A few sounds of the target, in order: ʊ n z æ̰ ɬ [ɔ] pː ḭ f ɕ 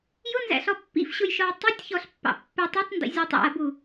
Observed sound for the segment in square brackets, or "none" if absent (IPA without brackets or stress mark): ɔ